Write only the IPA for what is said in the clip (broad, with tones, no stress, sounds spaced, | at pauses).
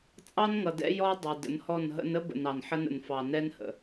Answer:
t͡sʼ ɑ˦ n ŋ ʌ˨ d ɛ̰˦ j ɔ˦ dˤ ʊ˨ d ə̰˨˦ n h ɔ˦˨ n ɦ ə̰˦ n ə˦ b ə̰˨ n ɑ˨ n ħ ə˦ n ə̰˨ n f ɑ˨ n ɛ˦ n h ə̰˨